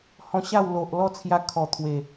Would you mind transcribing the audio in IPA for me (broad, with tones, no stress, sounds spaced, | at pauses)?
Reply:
h ɔ̃˧ ɕ a˥˧ w l o˨ ʔ l ɔ˥˧ t͡sʰ j a˧ kʰ ɔ˨˩ t̪ʰ w e˨˩